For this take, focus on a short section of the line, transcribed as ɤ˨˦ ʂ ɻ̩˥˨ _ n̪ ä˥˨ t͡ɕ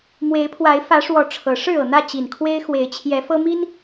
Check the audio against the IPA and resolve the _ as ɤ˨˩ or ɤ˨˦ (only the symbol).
ɤ˨˩